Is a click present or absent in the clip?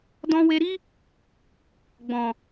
absent